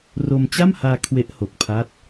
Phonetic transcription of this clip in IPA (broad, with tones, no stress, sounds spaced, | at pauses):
r o˧ m t͡ɕ a˥˩ m h aː˧ kʰ w e˦˥ ʔ h o˨˩ k̚ pʰ a˦˥ t̚